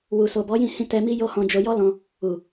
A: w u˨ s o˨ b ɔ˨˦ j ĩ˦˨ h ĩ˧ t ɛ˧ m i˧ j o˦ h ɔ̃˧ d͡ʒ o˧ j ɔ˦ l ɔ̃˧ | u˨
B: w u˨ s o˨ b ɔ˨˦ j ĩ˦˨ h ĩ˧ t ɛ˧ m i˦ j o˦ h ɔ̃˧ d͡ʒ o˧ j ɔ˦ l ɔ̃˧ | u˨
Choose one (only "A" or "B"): B